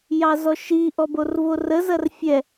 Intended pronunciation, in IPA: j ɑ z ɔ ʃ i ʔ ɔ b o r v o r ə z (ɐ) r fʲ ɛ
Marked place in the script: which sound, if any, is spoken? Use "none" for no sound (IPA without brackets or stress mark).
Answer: ɐ